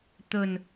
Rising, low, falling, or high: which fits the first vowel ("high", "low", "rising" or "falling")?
low